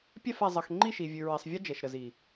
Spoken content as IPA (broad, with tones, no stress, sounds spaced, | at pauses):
pʲ ɛ˦˨ f ɛ˨ zˤ ʌ˨ x ŋ͡ǃ i˦˨ ʃ i˨ vʲ ʉ˨ ɹ i˨ sˤ vʲ ʌ˦ d͡ʒ ɛ˨ ʃ ɾ ə˨ z i˨